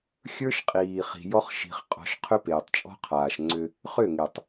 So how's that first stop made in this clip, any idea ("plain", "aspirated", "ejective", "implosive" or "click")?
ejective